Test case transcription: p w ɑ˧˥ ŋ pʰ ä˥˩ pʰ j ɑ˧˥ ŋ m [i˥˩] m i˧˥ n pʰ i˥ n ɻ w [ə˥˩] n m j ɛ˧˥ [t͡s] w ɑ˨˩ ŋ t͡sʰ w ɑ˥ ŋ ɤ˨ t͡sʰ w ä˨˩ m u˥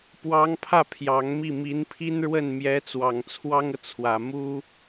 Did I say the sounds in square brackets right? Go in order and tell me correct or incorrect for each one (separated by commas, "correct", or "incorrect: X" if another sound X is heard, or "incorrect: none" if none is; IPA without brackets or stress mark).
correct, correct, correct